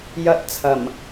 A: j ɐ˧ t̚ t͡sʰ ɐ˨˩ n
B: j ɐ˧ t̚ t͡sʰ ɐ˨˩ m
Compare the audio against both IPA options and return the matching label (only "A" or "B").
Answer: B